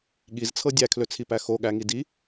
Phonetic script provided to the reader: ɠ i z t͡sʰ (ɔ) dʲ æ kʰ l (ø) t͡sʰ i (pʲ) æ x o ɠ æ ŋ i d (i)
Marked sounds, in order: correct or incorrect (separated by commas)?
incorrect, correct, incorrect, correct